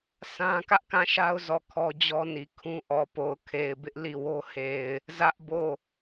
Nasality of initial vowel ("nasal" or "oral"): nasal